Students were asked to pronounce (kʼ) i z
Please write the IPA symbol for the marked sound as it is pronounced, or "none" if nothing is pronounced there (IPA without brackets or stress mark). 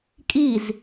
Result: kʼ